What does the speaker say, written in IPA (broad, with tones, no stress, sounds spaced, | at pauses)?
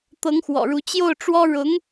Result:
t̪ ɤ˧˥ ŋ x w ɔ̰˨˩ ɻ u˧˥ t͡ɕ j o˥˩ ʊ̯ ʈ͡ʂ w ɔ˥ ɻ ʊ˧˥ ŋ